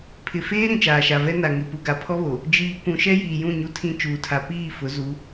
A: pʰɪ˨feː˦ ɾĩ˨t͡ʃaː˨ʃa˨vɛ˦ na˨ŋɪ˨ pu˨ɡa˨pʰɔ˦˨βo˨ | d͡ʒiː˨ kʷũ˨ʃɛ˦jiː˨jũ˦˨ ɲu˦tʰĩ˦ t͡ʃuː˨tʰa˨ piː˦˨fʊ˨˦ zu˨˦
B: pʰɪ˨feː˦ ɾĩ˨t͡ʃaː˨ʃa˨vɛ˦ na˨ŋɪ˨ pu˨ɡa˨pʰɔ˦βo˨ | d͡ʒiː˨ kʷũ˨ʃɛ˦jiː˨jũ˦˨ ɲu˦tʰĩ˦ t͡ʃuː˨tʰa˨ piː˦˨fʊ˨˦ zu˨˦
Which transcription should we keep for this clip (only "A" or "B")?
B